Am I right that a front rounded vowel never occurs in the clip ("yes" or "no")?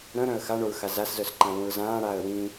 no